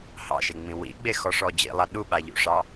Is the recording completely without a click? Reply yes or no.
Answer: yes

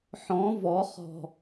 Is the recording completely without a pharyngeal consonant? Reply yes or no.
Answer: no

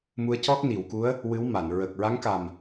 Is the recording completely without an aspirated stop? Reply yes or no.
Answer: yes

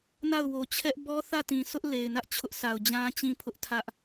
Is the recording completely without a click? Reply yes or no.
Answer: yes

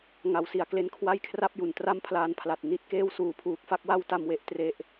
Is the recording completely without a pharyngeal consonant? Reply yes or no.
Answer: yes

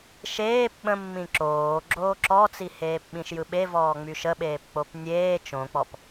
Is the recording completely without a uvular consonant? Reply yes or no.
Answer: yes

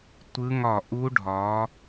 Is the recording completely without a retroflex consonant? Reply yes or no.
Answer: no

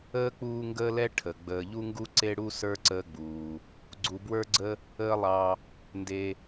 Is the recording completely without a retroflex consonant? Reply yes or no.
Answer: no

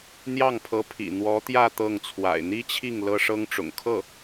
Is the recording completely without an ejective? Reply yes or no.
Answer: yes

